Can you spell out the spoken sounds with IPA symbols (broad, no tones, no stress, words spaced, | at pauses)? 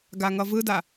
ɡaŋʌvɯda